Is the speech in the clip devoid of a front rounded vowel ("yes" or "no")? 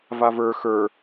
yes